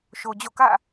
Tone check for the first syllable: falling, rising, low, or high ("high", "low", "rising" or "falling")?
low